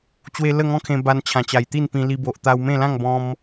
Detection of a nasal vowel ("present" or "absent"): present